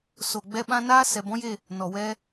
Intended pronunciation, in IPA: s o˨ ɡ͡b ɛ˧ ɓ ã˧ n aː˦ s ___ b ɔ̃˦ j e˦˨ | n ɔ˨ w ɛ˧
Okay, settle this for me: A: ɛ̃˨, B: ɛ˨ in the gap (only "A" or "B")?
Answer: B